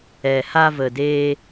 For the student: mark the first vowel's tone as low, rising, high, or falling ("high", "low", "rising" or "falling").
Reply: low